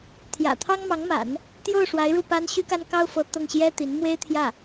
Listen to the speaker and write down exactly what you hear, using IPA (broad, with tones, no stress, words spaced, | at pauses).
t̪ʰjä̰˨˩t̪ʰɑ˥ŋmɑ˧˥ŋma̰˨˩˦n | t̪jo˥˩ʊ̯ ʂwa˧˥ɪ̯ɻu˥˩pa˥n ɕy˥ka˥nkɑ˥ʊ̯fɤ˧˥ t̪ɤ˥˩ŋɕjɛ˥t̪i˧˥n mwe˥ɪ̯t̪ʰjä˥˩